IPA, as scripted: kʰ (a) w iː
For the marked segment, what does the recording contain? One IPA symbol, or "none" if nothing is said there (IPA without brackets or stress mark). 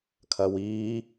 ɐ